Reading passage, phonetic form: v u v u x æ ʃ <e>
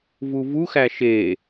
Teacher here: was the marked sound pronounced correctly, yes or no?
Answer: yes